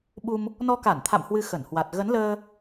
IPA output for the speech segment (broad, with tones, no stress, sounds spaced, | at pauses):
ɓ u˧ m | n ɔ˧ k a˧˩ n t̪ʰ a̰˧˨ m h w ɨ˧ x ə˧˩ n h w a˨˩ t̚ ɣ ə˨˦ n l əː˧